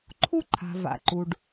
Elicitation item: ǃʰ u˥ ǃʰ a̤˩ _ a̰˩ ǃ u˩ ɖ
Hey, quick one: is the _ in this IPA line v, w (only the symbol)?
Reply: v